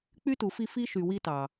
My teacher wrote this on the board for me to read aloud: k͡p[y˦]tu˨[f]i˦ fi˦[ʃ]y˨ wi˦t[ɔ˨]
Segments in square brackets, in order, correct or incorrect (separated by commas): correct, correct, correct, incorrect